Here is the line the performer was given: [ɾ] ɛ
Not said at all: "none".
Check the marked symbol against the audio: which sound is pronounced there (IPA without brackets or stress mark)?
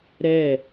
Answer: ɾ